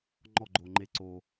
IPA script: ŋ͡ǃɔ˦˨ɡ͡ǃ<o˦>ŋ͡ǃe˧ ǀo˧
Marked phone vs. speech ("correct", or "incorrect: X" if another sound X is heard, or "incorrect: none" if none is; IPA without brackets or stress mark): incorrect: o˨